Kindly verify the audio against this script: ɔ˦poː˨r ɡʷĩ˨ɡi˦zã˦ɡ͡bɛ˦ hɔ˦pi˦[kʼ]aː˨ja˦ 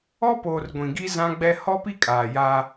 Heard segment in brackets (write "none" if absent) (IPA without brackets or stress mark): kʼ